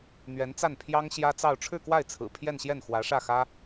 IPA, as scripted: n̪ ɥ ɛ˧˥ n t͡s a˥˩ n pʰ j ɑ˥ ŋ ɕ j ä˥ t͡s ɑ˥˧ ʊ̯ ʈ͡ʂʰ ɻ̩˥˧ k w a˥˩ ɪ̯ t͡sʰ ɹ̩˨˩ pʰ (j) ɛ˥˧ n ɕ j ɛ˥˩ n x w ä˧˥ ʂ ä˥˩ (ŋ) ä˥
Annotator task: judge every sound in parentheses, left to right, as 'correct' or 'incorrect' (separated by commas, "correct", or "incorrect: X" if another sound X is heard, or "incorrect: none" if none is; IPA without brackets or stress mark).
correct, incorrect: x